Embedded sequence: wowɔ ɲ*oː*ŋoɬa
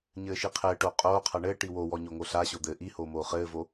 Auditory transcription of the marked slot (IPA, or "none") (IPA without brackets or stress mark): o